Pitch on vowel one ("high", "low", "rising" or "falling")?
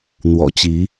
low